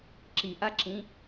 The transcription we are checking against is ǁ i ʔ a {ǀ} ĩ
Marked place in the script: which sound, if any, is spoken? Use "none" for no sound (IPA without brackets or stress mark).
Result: ǁ